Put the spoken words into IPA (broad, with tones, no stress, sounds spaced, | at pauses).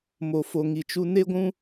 m o˨ f o˨ ŋ i˨ t͡ʃ u˧ n e˦ ɡʷ ũ˦